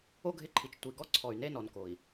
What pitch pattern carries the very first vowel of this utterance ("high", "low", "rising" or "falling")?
high